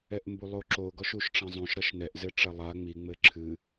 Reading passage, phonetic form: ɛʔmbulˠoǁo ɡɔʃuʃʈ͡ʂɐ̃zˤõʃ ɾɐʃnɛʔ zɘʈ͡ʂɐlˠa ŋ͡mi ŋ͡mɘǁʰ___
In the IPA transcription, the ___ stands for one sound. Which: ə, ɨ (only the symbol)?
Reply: ɨ